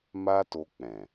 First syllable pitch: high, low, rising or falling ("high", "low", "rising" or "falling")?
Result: high